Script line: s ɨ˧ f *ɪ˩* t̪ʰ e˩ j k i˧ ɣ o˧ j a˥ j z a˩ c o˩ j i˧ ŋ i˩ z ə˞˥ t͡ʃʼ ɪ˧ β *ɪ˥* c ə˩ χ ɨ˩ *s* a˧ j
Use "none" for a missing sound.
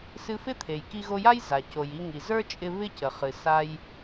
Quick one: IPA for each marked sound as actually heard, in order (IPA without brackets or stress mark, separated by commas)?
ɪ˥, ɪ˥, s